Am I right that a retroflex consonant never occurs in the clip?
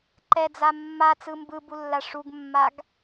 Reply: no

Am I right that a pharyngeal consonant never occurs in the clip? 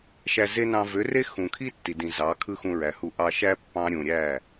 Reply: yes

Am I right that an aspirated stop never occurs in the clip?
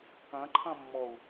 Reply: no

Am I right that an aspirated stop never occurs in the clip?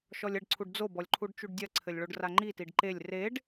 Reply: no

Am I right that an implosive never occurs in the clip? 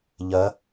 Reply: yes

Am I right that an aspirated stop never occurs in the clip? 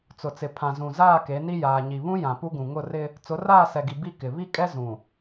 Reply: no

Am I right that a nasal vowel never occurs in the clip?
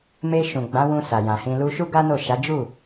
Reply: no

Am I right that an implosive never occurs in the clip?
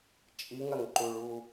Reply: yes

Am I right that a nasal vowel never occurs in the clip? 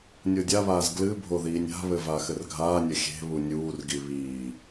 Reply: yes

